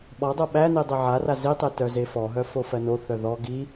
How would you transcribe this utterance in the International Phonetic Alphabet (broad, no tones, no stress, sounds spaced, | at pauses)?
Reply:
ɓ ɔ dˤ o ɓ æ n i dˤ e ʕ a r a z i tˤ e t œ z e f ɔ ɦ œ f o f ɜ n o θ œ ð ɔ ɡ i